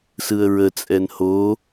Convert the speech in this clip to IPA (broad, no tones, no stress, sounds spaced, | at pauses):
s ɯ ə̯ ɹ ə t͡sʼ ɛ n h o